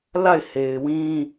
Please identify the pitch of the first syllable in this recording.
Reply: falling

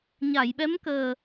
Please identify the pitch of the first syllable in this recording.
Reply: low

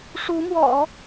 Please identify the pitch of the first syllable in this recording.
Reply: rising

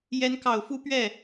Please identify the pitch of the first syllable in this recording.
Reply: rising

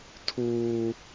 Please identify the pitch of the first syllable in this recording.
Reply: high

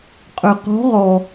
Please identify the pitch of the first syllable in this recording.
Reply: low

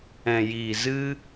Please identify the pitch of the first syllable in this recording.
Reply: low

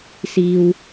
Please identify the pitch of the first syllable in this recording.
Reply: high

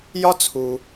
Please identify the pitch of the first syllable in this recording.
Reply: high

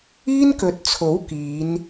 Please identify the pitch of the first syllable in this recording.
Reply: high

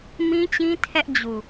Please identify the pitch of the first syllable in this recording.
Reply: high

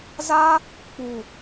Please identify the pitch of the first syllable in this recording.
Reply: high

